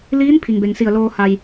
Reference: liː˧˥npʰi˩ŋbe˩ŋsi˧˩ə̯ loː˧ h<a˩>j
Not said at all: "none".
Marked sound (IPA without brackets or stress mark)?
a˩